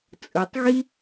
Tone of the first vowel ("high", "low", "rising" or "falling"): low